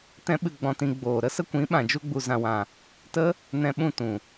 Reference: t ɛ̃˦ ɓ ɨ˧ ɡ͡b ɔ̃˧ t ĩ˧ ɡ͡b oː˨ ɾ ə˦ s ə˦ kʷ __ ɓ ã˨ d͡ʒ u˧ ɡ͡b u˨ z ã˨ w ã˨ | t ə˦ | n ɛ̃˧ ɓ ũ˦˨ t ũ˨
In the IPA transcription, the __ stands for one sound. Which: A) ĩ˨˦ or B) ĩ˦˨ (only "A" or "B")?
A